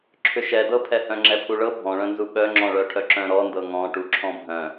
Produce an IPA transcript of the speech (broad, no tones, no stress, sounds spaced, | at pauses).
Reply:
ǁʰ ʏ ʃ ɛ d ɤ pʰ ɛ h œ̃ ŋ͡ǁ ɛ pʰ u ɭ ɤ bʱ ɔ̃ ɭ œ̃ n z u ɓ œ ŋ͡ǁ ɔ̃ ɭ œ ʈʰ œ ǁ œ̃ ɾ ɔ n d ɤ ŋ ɔ̃ ʈ u ǁʰ ɔ̃ bʱ œ̃